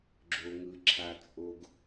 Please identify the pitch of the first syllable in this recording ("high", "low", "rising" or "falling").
low